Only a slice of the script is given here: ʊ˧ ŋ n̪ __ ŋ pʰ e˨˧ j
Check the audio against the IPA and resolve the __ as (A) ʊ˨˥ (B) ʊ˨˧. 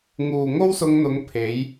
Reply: B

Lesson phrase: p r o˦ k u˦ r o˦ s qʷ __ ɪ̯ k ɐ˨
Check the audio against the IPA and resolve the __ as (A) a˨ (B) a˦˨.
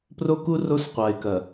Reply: A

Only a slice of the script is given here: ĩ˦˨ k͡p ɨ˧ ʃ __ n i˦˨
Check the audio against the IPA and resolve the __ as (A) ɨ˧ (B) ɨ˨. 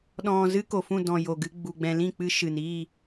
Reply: B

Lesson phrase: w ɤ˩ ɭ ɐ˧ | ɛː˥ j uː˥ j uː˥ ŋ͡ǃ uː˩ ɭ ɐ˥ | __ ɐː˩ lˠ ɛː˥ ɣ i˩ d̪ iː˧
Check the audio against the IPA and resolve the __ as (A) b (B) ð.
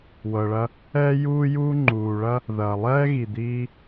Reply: B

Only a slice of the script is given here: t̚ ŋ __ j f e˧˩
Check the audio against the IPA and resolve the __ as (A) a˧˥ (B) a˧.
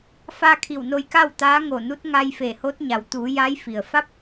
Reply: B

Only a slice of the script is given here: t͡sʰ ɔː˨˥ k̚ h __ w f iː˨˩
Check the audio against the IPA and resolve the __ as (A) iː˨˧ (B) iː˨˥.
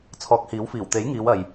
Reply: B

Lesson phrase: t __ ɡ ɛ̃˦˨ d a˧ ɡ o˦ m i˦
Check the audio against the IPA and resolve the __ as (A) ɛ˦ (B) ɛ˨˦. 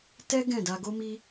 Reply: A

